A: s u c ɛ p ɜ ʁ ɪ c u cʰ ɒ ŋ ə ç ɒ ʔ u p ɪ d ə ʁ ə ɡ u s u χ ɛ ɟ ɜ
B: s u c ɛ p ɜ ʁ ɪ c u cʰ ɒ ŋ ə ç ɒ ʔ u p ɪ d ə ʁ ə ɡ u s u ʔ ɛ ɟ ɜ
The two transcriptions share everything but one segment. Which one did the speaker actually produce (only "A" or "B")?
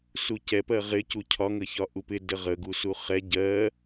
A